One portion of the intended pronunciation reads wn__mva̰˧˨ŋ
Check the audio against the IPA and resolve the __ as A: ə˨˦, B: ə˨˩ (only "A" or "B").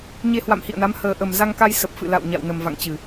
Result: B